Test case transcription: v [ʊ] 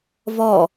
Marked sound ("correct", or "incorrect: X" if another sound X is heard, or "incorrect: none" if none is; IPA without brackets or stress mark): incorrect: ɔ